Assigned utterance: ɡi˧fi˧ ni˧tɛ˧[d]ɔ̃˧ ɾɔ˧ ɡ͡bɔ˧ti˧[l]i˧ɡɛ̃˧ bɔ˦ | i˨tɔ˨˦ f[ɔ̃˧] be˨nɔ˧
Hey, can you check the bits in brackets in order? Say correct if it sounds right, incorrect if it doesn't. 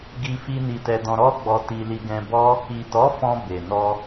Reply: correct, correct, correct

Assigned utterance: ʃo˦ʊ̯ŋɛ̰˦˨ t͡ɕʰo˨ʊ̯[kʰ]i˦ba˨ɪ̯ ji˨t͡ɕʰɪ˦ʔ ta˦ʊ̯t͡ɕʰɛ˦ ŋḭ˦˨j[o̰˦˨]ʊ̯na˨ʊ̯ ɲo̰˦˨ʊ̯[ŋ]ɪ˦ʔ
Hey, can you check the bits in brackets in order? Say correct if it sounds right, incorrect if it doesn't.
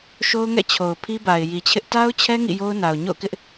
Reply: incorrect, incorrect, incorrect

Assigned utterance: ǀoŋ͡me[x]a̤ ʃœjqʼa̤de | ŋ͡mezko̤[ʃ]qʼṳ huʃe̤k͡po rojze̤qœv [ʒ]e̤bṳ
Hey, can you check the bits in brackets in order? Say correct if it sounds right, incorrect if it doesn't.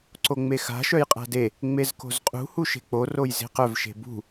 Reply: correct, incorrect, incorrect

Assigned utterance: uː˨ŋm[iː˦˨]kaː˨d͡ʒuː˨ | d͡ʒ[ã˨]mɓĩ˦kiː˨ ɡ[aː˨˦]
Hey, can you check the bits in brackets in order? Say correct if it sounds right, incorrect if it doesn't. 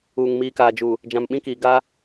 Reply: incorrect, correct, incorrect

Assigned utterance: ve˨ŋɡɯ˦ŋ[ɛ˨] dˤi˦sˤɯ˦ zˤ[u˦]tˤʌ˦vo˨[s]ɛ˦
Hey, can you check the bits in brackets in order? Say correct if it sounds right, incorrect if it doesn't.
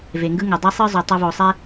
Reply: correct, incorrect, incorrect

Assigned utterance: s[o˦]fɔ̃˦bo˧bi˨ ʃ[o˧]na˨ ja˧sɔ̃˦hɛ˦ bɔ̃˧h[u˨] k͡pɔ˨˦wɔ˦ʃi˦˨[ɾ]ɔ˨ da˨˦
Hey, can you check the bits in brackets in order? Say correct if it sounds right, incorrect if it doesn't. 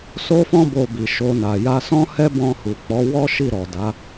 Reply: correct, correct, correct, correct

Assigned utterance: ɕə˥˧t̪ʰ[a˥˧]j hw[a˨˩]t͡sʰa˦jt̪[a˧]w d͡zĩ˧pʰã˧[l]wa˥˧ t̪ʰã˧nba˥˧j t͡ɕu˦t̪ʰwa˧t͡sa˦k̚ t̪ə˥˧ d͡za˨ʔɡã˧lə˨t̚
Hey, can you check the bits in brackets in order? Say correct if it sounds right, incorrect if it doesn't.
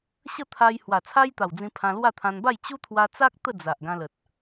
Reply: incorrect, correct, incorrect, correct

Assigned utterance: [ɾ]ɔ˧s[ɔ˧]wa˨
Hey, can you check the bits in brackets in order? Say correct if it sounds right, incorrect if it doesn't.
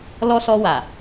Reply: incorrect, correct

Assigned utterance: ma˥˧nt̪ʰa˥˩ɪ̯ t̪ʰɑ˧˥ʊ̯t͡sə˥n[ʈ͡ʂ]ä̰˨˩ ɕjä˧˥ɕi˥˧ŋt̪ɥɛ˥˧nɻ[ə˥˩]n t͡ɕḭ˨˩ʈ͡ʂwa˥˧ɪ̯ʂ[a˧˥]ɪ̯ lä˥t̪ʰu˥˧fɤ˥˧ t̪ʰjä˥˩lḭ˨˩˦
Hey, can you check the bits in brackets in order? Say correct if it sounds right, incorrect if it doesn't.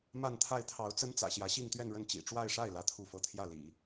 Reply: incorrect, correct, incorrect

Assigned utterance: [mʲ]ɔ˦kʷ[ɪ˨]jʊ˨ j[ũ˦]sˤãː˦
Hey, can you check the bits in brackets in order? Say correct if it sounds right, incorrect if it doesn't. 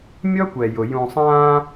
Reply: correct, incorrect, incorrect

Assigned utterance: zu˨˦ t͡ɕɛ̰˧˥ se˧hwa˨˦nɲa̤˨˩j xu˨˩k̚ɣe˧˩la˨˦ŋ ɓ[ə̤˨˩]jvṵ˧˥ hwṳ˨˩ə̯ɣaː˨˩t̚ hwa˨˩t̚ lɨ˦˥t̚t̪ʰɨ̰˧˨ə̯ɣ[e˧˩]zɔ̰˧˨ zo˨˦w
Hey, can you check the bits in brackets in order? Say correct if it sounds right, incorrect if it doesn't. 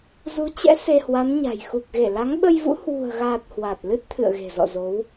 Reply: incorrect, incorrect

